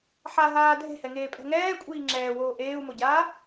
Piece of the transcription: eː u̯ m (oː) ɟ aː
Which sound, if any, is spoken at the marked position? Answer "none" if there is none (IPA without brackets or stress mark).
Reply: o